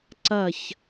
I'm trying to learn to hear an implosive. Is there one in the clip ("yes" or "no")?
no